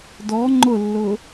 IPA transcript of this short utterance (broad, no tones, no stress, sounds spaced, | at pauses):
d ɔ ŋ͡ǃ ʊ lː ʊ